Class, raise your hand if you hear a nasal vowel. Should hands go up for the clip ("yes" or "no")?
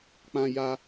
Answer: yes